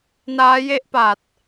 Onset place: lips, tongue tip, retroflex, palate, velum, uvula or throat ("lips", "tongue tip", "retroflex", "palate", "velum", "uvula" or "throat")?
tongue tip